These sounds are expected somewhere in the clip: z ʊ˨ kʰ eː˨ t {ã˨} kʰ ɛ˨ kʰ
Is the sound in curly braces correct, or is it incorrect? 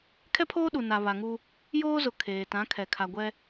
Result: incorrect